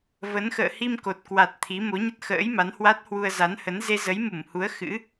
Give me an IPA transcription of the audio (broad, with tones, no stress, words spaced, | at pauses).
və˨˦n xə̰ː˧˨hi˧mko˨˩t̚kwa˨˩t̚ t̪ʰi˨˦ mo˨˦ɲə˦˥t̚xə̰ː˧˥jma˨˦n hwa˦˥t̚hwu˧ə̯ za˨˦nhə˨˦n ze˧zə˨˦jmu˧˩mhu˨˦ə̯ xɨ̰˧˥